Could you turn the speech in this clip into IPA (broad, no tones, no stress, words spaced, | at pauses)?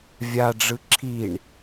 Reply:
vʲaɖ͡ʐɯ ǁʰiɳ